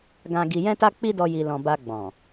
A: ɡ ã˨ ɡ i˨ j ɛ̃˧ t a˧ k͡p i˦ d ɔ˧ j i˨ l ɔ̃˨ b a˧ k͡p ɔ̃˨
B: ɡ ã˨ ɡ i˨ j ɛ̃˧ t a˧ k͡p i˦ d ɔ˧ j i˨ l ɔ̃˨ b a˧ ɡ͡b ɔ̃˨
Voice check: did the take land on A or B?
B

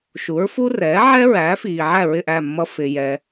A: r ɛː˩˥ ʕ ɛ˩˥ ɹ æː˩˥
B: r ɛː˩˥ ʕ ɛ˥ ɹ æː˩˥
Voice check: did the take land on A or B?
B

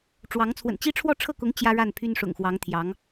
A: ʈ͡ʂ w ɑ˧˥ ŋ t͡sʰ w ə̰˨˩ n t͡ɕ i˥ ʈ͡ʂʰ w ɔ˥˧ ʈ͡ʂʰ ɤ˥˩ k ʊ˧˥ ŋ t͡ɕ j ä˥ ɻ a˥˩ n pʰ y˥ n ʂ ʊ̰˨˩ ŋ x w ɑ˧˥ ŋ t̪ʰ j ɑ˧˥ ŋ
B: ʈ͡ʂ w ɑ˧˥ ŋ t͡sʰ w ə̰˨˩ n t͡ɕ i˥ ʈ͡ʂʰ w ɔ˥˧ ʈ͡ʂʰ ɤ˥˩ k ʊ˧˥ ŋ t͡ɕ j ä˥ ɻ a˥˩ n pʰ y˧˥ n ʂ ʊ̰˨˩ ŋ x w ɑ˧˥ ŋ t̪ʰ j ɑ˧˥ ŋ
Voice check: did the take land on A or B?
A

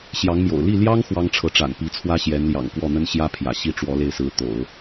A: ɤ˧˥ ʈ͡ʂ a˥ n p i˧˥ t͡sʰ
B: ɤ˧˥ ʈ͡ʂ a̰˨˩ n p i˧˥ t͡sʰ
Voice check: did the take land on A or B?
B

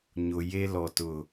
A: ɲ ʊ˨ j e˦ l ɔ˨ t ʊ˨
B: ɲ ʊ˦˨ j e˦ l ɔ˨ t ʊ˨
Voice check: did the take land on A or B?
A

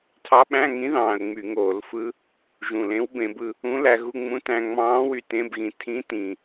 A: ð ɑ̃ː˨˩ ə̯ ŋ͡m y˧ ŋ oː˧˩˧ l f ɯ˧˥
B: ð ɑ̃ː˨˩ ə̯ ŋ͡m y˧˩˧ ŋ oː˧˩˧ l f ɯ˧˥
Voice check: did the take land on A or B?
B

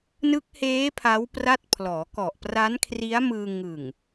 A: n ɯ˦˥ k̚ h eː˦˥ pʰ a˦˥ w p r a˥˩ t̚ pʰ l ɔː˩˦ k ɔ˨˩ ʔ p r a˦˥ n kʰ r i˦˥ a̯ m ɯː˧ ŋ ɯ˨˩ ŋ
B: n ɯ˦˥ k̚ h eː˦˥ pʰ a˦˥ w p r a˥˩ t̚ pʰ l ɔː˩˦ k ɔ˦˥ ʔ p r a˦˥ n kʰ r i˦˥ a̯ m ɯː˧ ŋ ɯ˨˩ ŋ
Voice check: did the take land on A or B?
A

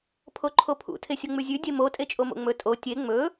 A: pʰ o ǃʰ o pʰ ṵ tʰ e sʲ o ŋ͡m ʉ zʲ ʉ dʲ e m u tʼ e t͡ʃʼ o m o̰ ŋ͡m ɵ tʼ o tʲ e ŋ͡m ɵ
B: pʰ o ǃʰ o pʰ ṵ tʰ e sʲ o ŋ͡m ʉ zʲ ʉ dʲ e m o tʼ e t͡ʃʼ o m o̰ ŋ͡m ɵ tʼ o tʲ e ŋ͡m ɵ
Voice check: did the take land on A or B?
B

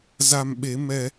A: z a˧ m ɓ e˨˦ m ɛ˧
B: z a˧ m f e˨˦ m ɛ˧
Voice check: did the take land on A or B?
A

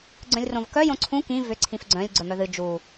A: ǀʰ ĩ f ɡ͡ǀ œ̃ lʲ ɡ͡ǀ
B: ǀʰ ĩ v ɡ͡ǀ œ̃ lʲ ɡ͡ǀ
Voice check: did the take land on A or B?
A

